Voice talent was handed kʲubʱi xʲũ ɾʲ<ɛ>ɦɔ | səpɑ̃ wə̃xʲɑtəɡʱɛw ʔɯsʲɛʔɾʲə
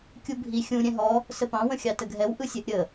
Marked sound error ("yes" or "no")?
yes